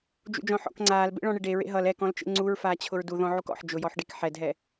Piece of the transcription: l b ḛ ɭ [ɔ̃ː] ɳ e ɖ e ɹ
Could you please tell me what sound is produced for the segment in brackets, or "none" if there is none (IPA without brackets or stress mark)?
ɔ̃